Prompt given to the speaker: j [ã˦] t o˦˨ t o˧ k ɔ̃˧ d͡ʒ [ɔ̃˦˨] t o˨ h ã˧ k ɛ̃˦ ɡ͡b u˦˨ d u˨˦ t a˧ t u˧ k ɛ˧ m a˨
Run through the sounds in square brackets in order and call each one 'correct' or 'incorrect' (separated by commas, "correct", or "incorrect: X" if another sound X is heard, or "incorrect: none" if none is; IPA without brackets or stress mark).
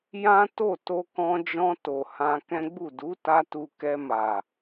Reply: correct, incorrect: ɔ̃˧